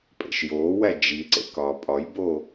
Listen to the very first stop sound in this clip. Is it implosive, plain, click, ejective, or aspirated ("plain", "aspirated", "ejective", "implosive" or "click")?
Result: ejective